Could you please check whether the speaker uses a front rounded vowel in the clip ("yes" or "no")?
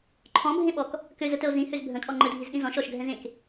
yes